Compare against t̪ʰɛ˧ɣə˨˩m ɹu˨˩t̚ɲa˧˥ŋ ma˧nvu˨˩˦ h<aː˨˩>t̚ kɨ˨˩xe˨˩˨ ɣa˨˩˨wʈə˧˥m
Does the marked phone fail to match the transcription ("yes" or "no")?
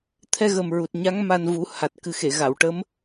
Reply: yes